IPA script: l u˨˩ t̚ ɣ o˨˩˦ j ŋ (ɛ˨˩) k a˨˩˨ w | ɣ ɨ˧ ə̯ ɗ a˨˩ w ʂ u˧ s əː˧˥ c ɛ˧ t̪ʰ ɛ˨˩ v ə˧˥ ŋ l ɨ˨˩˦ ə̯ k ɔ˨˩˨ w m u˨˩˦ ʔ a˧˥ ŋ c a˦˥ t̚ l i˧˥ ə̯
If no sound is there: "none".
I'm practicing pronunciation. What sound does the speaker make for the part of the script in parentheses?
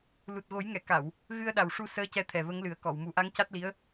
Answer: ɛ˨˩˨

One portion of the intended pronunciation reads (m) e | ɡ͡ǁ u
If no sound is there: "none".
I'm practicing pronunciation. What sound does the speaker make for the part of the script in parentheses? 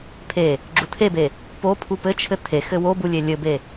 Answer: pʰ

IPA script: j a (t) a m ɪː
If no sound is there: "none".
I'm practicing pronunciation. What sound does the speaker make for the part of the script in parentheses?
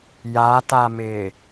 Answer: t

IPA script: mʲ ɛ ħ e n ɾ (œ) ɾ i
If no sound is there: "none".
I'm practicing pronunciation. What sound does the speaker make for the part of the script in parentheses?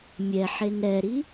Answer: ɛ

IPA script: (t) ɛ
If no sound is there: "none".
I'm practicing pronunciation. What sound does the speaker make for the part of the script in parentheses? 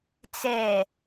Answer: t͡s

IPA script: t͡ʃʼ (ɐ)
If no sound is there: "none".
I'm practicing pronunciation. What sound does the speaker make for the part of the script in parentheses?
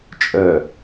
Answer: ə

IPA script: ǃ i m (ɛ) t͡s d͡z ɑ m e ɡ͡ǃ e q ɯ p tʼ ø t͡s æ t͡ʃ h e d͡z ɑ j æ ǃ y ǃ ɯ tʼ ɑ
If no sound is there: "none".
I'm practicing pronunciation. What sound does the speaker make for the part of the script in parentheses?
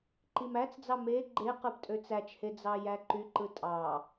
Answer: æ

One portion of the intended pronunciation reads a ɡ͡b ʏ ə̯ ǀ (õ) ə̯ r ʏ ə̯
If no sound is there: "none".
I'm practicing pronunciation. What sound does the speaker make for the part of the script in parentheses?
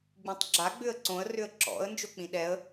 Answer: õ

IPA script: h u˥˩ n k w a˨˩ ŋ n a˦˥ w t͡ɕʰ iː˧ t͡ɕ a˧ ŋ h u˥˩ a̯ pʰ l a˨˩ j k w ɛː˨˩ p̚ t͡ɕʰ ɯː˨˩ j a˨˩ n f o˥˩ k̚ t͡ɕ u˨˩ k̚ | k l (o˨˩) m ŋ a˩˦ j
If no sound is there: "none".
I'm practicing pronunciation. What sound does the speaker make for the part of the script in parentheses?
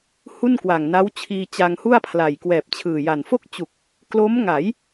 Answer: o˦˥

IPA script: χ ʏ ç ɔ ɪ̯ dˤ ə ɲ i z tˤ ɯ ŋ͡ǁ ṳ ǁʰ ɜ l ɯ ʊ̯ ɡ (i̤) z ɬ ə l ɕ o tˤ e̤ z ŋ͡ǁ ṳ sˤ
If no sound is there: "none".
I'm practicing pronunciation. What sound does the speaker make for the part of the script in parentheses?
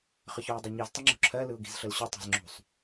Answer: i̤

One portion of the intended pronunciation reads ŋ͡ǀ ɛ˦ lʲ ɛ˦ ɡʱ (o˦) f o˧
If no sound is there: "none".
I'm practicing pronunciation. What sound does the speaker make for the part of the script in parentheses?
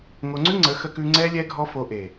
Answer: ɔ˦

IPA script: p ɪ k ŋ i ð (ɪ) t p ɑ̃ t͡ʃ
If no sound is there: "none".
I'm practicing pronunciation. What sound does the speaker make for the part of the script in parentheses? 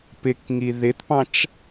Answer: ɪ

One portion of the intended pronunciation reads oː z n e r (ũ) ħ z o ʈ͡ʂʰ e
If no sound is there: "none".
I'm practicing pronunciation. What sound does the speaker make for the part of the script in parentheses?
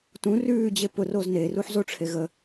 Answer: u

